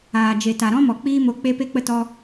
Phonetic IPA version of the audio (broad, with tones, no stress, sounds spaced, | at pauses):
aː˨ d͡ʒ e˨ t a˨ ɾ ɔ̃˦ m ɔ˨ k͡p iː˦ m o˧ k͡p e˦ p e˦ k͡p ə˦ t ɔ˦